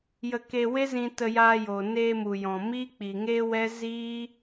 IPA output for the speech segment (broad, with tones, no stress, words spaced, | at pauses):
jə˧ ke˧we˦zĩ˧ tə˧jaː˧joː˨ neː˧ mu˨jɔ̃˨ miː˦k͡pi˨ŋeː˦wɛ˦ ziː˦